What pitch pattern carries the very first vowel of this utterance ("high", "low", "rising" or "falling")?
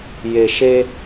low